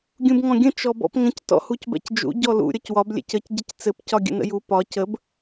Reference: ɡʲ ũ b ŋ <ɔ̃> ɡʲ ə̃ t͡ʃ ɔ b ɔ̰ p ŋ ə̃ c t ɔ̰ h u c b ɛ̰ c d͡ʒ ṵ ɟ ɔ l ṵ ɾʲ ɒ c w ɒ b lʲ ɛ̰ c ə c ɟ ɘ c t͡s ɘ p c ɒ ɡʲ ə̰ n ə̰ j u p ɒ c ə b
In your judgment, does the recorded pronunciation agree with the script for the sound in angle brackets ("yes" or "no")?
yes